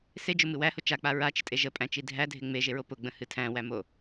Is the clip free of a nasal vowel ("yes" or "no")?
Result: no